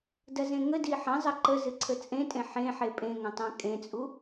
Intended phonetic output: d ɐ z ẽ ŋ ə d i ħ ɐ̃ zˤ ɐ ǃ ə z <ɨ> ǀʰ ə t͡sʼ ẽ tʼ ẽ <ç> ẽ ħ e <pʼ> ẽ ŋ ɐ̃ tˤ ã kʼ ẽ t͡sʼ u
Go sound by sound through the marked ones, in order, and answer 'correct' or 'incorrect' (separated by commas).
correct, incorrect, correct